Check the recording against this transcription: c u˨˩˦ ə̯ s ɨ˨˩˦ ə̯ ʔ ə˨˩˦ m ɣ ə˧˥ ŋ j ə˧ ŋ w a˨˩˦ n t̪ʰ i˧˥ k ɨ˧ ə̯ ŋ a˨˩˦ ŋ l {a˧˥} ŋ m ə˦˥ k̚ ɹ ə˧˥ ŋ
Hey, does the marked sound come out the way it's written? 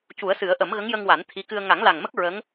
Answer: no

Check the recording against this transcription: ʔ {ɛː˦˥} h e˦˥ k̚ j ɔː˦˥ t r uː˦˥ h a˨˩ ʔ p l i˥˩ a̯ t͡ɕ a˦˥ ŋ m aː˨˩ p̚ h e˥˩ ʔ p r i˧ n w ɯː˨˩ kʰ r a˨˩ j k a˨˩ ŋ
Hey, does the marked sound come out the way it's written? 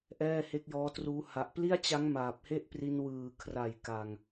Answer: no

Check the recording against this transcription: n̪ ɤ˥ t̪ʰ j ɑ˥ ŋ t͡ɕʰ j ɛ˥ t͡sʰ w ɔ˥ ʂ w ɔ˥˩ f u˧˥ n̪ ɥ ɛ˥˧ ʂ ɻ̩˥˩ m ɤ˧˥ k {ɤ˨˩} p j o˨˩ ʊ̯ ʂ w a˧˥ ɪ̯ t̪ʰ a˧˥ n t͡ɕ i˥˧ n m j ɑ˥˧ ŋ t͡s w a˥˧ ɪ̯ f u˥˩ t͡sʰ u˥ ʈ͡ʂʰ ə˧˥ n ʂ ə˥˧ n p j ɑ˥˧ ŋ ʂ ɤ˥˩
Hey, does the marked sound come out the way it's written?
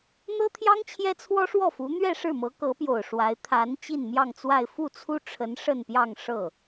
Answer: no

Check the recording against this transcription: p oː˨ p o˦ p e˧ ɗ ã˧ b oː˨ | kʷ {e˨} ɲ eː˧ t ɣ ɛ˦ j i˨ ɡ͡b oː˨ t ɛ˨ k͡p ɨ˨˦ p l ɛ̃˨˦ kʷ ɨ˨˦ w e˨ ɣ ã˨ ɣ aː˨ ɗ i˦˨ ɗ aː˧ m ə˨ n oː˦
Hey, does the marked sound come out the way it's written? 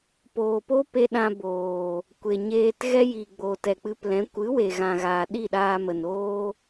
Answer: yes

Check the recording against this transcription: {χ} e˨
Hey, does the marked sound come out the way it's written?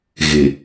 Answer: no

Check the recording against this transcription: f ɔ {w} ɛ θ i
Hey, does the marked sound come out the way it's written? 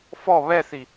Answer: no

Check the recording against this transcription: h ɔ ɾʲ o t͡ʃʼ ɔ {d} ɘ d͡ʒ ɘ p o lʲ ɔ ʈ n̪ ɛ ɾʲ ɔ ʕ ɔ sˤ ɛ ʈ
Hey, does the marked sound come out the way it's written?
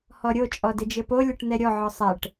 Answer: yes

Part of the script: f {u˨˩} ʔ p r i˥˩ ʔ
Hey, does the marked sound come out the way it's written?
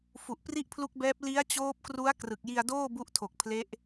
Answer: yes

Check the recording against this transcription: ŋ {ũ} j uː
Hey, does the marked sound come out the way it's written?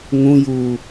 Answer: yes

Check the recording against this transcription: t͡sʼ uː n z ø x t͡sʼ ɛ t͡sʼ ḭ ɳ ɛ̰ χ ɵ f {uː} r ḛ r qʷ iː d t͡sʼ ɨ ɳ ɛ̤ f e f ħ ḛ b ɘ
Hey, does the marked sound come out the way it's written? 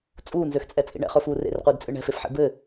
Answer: yes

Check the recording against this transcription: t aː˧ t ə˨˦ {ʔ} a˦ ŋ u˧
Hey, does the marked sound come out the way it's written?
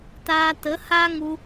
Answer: no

